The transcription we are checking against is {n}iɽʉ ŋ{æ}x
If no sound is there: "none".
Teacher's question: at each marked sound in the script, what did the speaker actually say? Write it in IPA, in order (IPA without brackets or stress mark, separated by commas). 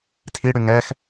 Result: tʰ, ɛ